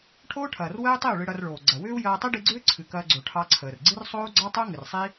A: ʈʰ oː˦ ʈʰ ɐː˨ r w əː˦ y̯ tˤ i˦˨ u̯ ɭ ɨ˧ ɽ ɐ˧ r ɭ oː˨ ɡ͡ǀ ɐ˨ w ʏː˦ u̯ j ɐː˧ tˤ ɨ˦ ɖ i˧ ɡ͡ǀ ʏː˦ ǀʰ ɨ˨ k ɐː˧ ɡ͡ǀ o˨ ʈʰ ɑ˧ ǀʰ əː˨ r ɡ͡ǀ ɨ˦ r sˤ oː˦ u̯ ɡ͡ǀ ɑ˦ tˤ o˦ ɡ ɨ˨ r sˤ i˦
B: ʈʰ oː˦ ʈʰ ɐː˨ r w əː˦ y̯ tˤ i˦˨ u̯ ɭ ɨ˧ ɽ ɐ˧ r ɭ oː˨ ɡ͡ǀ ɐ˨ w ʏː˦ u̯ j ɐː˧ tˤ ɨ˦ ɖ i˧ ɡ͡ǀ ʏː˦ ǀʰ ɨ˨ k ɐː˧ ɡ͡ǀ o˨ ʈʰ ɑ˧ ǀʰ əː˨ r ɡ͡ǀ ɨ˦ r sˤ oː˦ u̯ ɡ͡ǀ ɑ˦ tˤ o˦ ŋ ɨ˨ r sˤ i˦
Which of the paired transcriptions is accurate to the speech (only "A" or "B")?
B